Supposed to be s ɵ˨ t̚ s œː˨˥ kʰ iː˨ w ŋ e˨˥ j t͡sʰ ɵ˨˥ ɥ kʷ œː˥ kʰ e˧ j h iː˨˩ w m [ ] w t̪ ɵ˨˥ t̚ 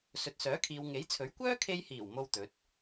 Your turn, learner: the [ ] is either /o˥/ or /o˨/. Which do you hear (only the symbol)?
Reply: o˥